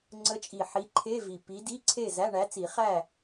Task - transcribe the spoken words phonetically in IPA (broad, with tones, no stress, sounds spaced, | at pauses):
ŋ͡ǀ ə˧˥ t͡ʃʼ i˨˩ ħ i˧˥ ǃʰ e˧˥˧ v i˨˩ p i˧˥ d i˧˥˧ ǀʰ e˥˨ z æ˧˥˧ ɳ æ˧˥ t͡s i˨˩˦ χ æ˥˨